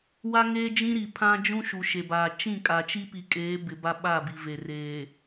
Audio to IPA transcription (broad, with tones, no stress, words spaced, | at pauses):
wa˦ŋeː˦d͡ʒĩ˦ɾi˨ pʰã˦d͡ʒũ˦ ʃu˨ʃe˨baː˨ t͡ʃĩ˦˨kʼa˨t͡ʃi˦ pi˨kʼeː˨˦bɪ˨ ba˦ɓa˦˨bi˨ve˨r eː˨